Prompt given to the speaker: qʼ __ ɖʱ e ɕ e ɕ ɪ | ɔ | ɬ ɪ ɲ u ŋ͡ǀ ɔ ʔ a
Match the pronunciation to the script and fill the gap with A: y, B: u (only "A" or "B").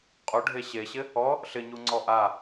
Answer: B